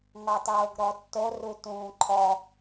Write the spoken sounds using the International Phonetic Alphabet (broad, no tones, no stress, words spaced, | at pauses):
ŋɔtˤoːɡɾɔtːo rutũːǃʰɔ